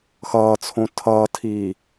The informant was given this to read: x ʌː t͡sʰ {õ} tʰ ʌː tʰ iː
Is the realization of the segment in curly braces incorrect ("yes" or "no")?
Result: no